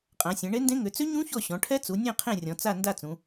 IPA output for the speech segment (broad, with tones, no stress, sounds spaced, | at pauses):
qʼ ã˩˧ sʲ ɛ̃˩˧ ɳ e˦˥ n d ẽ˦˥ ŋ ʏ˩˧ t͡s ʏ˦˥ ɲ ũ˦˥ ç ɔ˦˨ ɕ ɔ̃˩˧ ʈʰ ɛ˦˥ t͡s u˩˧ nʲ ɛ̃˦˨ qʰ ẽ˦˨ rʲ ɔ̃˩˧ t͡s a˦˨ n d a˦˨ t͡s ũ˩˧